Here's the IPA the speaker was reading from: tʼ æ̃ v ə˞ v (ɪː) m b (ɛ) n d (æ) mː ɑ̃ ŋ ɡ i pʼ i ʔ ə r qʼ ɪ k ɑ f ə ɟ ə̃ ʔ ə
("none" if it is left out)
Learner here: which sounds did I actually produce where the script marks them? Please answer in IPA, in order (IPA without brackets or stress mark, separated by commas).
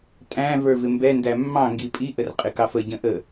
ɪ, ɛ, æ